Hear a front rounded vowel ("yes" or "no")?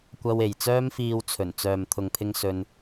yes